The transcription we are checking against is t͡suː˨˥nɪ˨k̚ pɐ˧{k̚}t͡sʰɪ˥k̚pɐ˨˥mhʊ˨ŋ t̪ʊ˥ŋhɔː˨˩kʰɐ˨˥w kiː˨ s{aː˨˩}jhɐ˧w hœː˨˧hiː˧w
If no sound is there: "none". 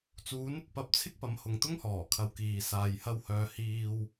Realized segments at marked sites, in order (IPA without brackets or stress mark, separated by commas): p̚, aː˨